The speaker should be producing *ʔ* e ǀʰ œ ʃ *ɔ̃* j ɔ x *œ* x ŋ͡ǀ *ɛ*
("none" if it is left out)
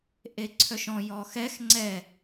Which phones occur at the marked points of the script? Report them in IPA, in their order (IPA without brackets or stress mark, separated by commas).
ʔ, ɔ̃, ɛ, ɛ